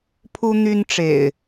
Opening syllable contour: high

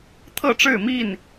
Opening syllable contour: falling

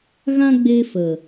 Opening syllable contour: high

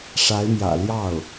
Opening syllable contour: rising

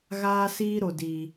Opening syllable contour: high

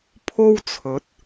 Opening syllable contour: high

